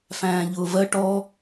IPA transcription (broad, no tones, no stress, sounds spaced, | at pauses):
f æ̃ː ʎ ʊː v ɜ ʈ ɔ